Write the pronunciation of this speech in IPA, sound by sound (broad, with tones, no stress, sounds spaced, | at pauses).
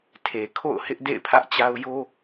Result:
tʰ e˨ kʰ o̰˦˨ ʊ̯ h ɪ˦ ʔ d ḛ˦˨ ɪ̯ pʰ ä˦ ʔ t͡ɕ a˦ ʊ̯ j o˦